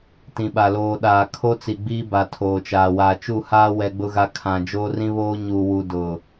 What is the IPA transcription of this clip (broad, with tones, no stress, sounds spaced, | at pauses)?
t ĩ˨ ɓ a˨ l oː˨ ɗ aː˨ kʰ o˦ t͡s i˨ ɡ͡b iː˦ b a˨ tʰ oː˨ t͡ʃ aː˨ w aː˨ t͡ʃ u˦˨ h aː˦ w ɛ˦ ɡ͡b ʊ˦ ɣ a˦ kʰ ã˨ d͡ʒ oː˦ r ĩ˦ β oː˦ ɲ uː˨ w u˨ d ʊ˨